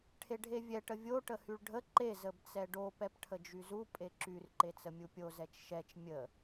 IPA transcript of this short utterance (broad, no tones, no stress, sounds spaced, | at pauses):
ʈʰ e ɖʱ e vʲ ɛ ʈ ə vʲ o ʈ ə h y ɭ ɖʱ ə ǃ e z ə b t͡s ɛ ɖ o p ɛ p ʈʰ ə d͡ʒ y z u pʼ e ǁ y r ǃ e t͡s ə mʲ u pʲ o z ɛ t͡ʃ ʃ ɛ t͡ʃ mʲ ə